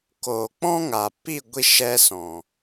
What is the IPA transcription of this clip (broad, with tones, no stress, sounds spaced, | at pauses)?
k oː˨ k͡p ɔ̃˦ ŋ a˨ p i˦˨ ɡʷ i˦ ʃ ɛ˦ s ɔ̃˨